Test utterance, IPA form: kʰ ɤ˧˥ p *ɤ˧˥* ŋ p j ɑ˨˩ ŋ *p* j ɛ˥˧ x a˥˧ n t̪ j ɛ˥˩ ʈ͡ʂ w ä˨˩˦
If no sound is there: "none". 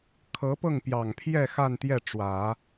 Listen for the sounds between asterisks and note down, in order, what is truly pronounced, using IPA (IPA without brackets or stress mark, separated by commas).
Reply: ɤ˥˩, pʰ